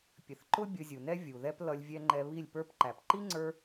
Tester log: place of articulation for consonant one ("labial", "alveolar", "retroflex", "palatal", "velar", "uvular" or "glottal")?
labial